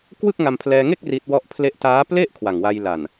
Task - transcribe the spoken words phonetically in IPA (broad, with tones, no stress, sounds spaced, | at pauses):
k w ɯ˥˩ k̚ ŋ a˧ m pʰ l ɛː˧ ŋ e˥˩ k̚ r i˦˥ t̚ w ɔ˥˩ ʔ pʰ l e˥˩ ʔ t aː˦˥ p l e˥˩ ʔ kʰ w a˨˩ ŋ w a˧ j l a˨˩ n